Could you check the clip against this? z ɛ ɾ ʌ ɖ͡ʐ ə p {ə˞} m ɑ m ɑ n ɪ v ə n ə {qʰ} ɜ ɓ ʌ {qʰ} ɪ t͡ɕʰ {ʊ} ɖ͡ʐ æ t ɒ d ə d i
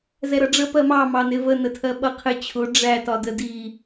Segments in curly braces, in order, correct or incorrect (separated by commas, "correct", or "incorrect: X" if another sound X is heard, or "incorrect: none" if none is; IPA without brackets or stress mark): incorrect: ɜ, incorrect: tʰ, correct, correct